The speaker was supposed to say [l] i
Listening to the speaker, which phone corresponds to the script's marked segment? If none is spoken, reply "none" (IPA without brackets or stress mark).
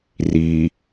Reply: r